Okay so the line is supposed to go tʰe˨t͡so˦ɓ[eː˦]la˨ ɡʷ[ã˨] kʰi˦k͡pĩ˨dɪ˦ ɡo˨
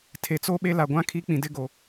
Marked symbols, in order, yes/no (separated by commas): no, no